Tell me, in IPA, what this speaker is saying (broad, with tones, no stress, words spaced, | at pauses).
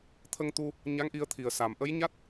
t̪ʰə˧ŋt̪u˧ | ɲa˧˥ŋʔi˧ə̯t̪ʰi˨˩ə̯ sa˨˩mʔə˧˥jɲa˦˥t̚